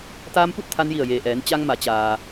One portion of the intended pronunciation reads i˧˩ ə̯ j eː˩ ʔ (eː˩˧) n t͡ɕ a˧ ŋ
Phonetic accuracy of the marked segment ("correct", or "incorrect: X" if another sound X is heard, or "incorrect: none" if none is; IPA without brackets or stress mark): incorrect: ɛː˩˧